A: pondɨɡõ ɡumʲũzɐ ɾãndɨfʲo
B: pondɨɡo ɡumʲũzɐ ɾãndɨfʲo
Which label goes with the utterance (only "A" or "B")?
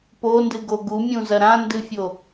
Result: B